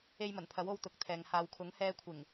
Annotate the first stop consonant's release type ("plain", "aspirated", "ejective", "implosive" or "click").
aspirated